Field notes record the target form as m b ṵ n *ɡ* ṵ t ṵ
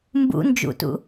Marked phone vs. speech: incorrect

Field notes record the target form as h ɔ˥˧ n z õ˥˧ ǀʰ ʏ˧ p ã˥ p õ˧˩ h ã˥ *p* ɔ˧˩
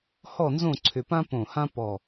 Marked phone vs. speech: correct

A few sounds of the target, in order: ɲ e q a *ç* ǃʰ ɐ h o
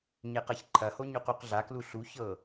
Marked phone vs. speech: correct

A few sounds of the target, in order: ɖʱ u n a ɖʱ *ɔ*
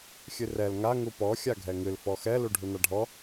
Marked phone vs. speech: correct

